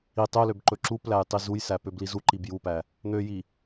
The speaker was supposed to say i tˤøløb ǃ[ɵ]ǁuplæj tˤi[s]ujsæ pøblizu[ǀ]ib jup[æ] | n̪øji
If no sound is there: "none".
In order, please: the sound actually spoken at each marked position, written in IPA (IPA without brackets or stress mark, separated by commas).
ɵ, z, ǃ, æ